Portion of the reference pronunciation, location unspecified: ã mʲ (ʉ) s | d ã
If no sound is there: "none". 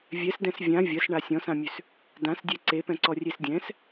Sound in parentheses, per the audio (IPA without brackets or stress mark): ʉ